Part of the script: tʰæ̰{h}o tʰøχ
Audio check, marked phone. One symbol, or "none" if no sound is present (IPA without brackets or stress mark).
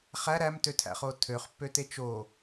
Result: χ